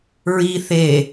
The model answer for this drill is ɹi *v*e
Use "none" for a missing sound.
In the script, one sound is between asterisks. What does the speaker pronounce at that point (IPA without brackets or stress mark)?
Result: θ